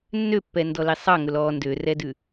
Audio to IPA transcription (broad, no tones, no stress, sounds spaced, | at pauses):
nː ø pː ɛ n d ɔ l i sˤ ɑ ŋ ɵ l ɔː n d ø r ɛ d ʉ